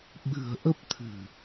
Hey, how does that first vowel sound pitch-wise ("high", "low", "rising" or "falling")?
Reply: low